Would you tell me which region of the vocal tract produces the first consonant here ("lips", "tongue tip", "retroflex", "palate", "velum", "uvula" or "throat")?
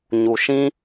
palate